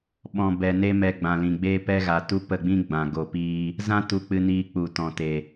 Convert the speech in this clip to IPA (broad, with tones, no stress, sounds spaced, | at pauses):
ɓ ɔ̃˨ b ɛ˨ n e˧ m ɛ˧ ɡ͡b ã˨ l ĩ˨ ɡ͡b eː˧ p ɛ˧ ɣ a˨ t u˧ p ə˦˨ ɡ͡b ĩ˦ ɡ͡b ã˨ ɡ o˨ p iː˧ | z ã˦ t u˧ k͡p ɨ˧ n iː˧ k͡p u˨ t ɔ̃˨ t e˨